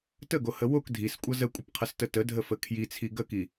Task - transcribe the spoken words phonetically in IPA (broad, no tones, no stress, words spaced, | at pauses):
təɡohə wok dʱiskʷʼʌ zəkʷʼəpqʰʌstə tədʱəfə kʰjit͡sʰi ɡəki